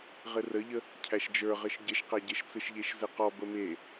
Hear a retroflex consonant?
no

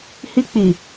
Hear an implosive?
no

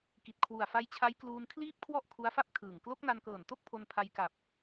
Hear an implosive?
no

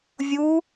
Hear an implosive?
no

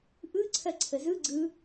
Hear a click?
yes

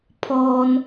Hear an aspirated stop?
yes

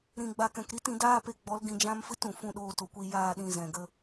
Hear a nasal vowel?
yes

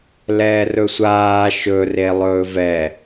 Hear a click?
no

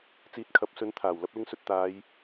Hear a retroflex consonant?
no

